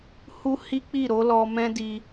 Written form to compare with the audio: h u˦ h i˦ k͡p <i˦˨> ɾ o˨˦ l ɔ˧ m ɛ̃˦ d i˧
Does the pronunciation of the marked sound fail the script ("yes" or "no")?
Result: no